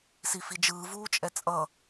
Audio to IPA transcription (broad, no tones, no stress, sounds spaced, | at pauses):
s i f i d͡ʒ ɯː v uː t͡ʃʼ ɛ t͡sʼ ʌ